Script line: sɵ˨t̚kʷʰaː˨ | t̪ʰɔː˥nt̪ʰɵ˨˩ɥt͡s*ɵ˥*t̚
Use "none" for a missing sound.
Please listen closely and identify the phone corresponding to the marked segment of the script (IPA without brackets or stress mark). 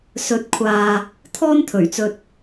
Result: ɵ˧